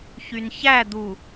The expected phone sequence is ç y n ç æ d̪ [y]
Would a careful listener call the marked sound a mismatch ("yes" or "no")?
yes